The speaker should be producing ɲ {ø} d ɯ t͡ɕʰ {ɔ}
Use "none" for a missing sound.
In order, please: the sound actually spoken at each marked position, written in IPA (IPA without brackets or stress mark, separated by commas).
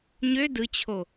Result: ø, o